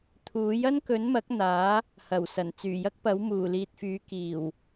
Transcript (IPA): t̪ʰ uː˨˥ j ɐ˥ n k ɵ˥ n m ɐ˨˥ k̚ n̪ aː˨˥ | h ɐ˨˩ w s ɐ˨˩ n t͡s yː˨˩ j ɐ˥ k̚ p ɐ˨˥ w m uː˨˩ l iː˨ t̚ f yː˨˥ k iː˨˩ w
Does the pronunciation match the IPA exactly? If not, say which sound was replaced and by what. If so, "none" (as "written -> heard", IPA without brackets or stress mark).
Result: ɵ˥ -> ɵ˨˥